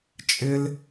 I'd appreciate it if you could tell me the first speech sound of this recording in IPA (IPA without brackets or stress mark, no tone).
t͡ʃʼ